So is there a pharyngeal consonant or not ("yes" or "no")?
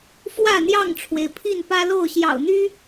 no